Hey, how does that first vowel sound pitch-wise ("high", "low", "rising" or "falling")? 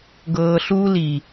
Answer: low